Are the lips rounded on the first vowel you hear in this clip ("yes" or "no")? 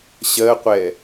no